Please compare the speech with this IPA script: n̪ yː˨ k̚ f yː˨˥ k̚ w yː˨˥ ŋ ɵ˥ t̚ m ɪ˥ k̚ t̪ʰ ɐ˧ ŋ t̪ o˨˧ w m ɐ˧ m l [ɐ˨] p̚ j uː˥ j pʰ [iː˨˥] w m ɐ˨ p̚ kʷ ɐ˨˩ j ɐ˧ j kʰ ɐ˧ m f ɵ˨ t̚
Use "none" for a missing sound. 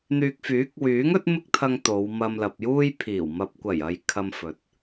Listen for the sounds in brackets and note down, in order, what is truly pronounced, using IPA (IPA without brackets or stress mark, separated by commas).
ɐ˨, iː˨˩